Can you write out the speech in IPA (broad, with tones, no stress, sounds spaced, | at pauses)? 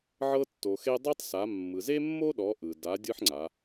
ʕ ɤ˧ tː o˩ x e˧ dˤ e˥ tˤ s a˩˧ mː ɯ˩ z e˥ mː o˥ ɗ ɔ˩˧ ʔ ɯ˩ d a˩˧ dʲ ɯ˥ ħ ŋ͡ǀ a˩˧